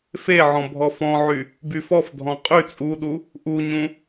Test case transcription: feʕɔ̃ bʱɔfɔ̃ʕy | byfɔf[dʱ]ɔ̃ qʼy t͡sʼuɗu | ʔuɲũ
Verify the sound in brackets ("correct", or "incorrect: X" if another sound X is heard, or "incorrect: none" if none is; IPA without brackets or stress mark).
correct